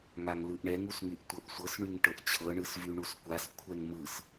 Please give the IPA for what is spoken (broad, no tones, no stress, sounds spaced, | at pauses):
ŋ a ŋ l ɯ ʔ ɳ ɛ ŋ u s ŋ y ʔ tʷ ɤ ʔ sʷ ɤ s ɳ y ŋ ʈ ɤ ʔ t͡ɕʰ ɤ ɳ ɯ s v y ɳ u s kʷ a s kʷʰ ɛ ŋ m ɯ s